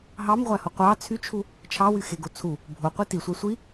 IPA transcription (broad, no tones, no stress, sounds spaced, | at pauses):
ɦ ɑ m ʁʷ æ h o qʷ ɑ t͡sʰ y t͡ʃʰ u | t͡ʃʰ ɑ w y x e ɡ o t͡sʰ u | bʱ o qʷ e t i sʷ ɑ sʷ i